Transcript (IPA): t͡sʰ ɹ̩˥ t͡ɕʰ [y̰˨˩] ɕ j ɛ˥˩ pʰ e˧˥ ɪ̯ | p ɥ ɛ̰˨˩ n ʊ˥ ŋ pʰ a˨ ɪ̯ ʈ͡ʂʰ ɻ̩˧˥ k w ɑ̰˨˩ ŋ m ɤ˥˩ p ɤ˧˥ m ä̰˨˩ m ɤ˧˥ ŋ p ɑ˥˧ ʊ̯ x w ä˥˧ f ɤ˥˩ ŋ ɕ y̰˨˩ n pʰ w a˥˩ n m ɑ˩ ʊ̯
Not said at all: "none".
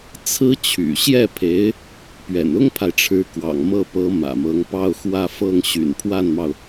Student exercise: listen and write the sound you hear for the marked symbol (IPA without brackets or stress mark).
y̰˨˩